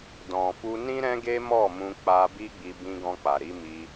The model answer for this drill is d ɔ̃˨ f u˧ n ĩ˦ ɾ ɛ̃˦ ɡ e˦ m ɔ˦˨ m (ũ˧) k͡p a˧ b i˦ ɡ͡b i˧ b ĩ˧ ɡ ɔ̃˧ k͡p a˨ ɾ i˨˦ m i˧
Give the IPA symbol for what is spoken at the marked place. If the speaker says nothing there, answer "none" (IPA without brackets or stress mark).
ũ˧